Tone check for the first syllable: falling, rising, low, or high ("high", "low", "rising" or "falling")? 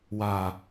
low